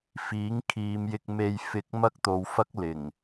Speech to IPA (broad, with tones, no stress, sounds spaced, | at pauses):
f iː˨˥ ŋ kʰ iː˨˧ m j ɪ˧ k̚ m e˧ j f ɪ˧ k̚ m ɐ˥ k̚ t̪ o˨˧ w f ɐ˥ k̚ l ɪ˨˩ ŋ